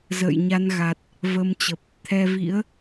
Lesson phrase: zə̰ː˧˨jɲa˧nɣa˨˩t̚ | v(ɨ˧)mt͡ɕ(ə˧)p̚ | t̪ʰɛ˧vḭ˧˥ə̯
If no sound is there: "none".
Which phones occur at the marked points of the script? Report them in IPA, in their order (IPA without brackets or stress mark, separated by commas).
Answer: ə˧, ə˨˩